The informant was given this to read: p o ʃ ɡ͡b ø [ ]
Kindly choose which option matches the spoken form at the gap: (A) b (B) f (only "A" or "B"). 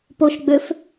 B